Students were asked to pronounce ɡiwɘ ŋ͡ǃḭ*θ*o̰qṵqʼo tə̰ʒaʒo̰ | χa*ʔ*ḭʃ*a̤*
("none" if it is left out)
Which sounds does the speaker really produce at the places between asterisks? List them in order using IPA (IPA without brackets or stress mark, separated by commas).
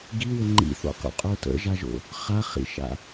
θ, χ, a̰